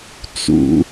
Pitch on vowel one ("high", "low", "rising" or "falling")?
high